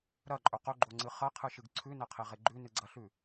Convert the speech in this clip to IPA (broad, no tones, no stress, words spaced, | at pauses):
ɾɐǃʼɵ qɵɡ͡ǃoŋ͡ǀɨ χɐqʰɨʃɨɡ ǀʰʉnɐqʰeʁe ɡ͡ǃʉnɨɡ͡ǀɐɬʉ